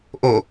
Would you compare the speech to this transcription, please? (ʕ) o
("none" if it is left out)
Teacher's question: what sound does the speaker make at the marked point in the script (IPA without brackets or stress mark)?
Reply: ʔ